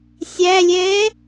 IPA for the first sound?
sʲ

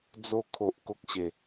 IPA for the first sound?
d͡z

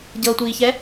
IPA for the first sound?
ɟ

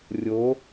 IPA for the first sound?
rʲ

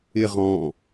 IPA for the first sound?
ɪ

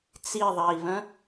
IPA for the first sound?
t͡s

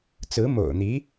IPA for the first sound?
t͡s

